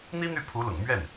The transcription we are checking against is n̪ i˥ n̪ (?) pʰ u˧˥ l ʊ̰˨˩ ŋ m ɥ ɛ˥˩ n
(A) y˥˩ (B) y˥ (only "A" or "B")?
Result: A